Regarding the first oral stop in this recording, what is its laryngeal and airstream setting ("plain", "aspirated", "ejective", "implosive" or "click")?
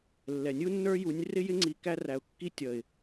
click